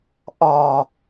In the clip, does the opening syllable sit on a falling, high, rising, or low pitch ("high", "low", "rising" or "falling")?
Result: low